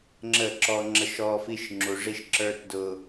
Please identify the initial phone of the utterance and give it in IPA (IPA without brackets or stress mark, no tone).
ŋ͡ǁ